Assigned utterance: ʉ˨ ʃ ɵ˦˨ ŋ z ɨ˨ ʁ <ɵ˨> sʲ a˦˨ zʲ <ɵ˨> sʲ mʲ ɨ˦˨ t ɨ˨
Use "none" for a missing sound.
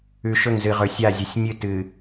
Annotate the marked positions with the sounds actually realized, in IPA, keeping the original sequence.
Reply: ɵ˨, ɵ˨

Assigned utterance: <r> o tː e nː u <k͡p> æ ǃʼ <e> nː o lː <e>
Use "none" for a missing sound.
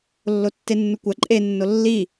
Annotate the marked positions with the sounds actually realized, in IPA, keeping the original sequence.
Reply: lː, kʷ, e, i

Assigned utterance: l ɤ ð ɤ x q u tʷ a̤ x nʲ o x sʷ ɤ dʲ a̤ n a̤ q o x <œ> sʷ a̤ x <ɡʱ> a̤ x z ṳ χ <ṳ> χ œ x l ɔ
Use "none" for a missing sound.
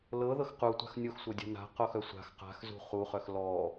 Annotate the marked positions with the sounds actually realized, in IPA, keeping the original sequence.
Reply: œ, q, u

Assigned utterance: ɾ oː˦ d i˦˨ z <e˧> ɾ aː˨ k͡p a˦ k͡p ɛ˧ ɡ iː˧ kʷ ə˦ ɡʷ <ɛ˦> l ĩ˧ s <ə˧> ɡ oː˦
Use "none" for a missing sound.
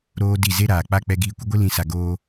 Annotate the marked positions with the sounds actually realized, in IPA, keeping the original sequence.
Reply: e˦, ɨ˦, a˧

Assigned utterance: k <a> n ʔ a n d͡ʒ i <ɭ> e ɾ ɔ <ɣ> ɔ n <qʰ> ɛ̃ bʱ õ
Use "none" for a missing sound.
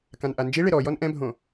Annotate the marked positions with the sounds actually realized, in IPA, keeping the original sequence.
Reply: ã, ɭ, j, ʔ

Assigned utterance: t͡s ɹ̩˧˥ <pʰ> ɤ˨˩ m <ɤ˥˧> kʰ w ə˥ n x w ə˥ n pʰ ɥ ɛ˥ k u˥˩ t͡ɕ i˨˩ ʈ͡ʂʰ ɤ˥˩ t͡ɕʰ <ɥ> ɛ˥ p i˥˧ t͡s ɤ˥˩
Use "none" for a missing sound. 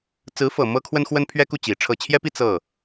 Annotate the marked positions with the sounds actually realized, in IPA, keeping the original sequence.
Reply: f, ɤ˥, j

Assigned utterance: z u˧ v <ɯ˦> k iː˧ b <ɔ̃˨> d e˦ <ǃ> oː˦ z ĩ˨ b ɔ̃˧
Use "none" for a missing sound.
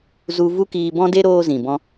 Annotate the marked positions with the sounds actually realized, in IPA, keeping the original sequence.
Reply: u˦, ɔ̃˦, ɾ

